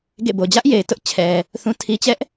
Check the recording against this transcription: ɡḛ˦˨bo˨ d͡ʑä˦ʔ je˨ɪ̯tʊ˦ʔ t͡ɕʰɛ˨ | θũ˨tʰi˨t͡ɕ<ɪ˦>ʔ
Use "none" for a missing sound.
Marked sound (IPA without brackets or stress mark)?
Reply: ɛ˦